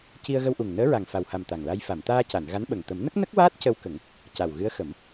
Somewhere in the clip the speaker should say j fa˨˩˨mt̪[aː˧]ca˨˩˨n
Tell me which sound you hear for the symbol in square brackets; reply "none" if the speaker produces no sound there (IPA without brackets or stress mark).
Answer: aː˧